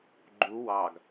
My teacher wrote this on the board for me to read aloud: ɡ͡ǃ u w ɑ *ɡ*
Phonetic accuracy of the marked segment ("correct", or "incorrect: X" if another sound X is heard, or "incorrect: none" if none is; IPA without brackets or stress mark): correct